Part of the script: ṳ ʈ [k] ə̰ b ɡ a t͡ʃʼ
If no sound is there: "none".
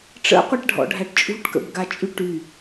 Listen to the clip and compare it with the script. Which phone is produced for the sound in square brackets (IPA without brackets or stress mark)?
k